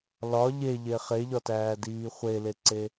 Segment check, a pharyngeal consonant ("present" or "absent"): absent